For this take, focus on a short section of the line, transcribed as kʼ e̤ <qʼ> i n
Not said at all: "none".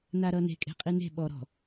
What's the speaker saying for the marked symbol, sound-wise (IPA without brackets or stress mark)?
qʼ